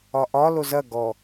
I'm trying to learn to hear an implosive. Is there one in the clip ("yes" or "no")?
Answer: no